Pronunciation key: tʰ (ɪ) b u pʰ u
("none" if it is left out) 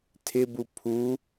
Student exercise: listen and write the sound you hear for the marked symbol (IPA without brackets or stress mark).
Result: ɪ